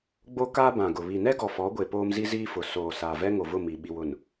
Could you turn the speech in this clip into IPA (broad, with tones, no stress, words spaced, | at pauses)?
ɡ͡bo˦ka˦bã˨ɡʊ˨ βi˨nɛ˦ ɡɔ˨fɔ˨˦ɡʷe˨ poː˦mzi˦ziː˦fʊ˨ soː˨ saː˨vɛ˦ŋo˨vʊ˦˨ mi˨ ɓi˨wʊ˨n